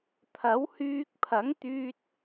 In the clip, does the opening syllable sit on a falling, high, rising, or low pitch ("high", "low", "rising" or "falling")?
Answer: rising